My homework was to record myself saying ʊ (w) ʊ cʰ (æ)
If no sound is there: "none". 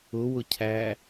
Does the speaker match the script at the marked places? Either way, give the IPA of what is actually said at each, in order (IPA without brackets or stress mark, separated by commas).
w, æ